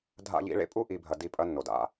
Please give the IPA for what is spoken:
dʱ a̰˨ ʎ ḭ˨ ɭ ḛ˦ pʼ u˦ ʔ i˨ bʱ ɐ˨ d i˨ pʼ ɐ˦ nː o˨ d a̰˦

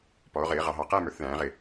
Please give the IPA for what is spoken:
p ɔ˩˧ o̯ ʁ ɪː˩˧ ʁ ɑ˩˧ ɦ ɑ˨˩ q æ˥˧ m ə˞˩˧ θ ð æ̃ː˩˧ ʁ ɪ˨˩

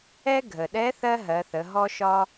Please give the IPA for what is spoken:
ɛ˥ ɡʱ ə˩ ɗ ɛ˧˥ θ ɜ˥ ɦ ɜ˩˧ θ ə˩˧ ɦ ɔ˧ ʃ ɒ˧

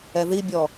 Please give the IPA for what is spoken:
ɛ ð i bʲ ɔ

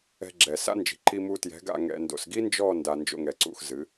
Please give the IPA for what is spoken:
ɛ̤˧ ɡ͡ǁ ɛ˨ s a̰˦ n d͡ʒ i̤˨ ǃ i˧ m u˧ t j ɛ̤˨˦ ɡ a̰˦˨ ŋ ɛ̰˧ n d o̰˨ s ɡ i˦ n d͡ʒ ɔ˦˨ n d a˧ n d͡ʒ o̰˧ ŋ ɛ˨ ǀ ṵ˦˨ x z ɨ˨˦

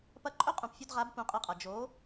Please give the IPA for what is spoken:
p ɐ˦ ǃʼ ɵ˦ qʼ ũ˨ p fʲ o˧ d ʁ a˨˦ b p ũ˧ qʼ ɨ˧ qʼ ɐ˨ d͡ʒ o˨˦

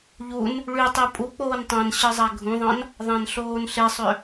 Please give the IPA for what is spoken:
ʎ u n | ɭ y tˤ ɯ pʼ u k͡p oː n tˤ æ̃ n ɕ ɯ zˤ æ ɡʱ ũ ðˤ ɑ̃ n | ðˤ æ̃ n ɬ oː n ɬ e sˤ ø

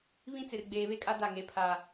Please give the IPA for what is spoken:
β ĩ˦ t͡s ɪ˨ r ɡ͡b eː˨ β e˦ kʼ a˦ d a˦˨ ŋ e˨˦ pʰ a˨

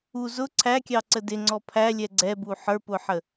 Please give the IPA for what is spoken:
u z ʊ ǀʰ æ kʲ ɑ ǀ ə d ɪ ŋ͡ǀ ɔ pʰ æ lʲ ɛ ɡ͡ǀ ɛ b u ħ ə˞ p ʊ ħ ə

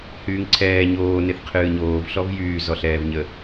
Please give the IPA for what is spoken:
h yː ŋ ǀʰ ɛː ɲ oː n e θ qʰ ɨː ɲ oː v ɬ ɔ v j yː z ɔ ɬ ɛː v ɲ ə

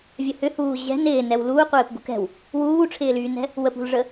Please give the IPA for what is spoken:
vʲ ə h ʏ h uː ʑ ɛ̤ n ɪː n ɛ w l uː qʷ ɪː p ɡ ṳ k ɛ̤ w | w uː ʈ͡ʂʰ ɪː l yː n ɛ̤ | w ə p ṳ l ʐ ə

